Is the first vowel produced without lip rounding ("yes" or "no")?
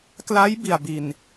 yes